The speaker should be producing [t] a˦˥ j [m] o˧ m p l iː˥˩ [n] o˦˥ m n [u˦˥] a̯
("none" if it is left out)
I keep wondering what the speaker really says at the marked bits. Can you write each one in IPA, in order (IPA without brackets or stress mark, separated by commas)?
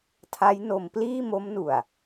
tʰ, n, m, u˨˩